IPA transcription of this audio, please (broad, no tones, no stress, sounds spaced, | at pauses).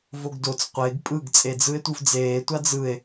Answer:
v o ɡ d o t͡s qʷ e ɡ pʼ ɯ ɡ t͡sʼ e d͡z ɯ e̯ tʷ ɯ v d͡z eː tʷ a d͡z ɯ e̯